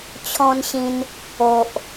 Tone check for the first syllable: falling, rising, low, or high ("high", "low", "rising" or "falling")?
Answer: high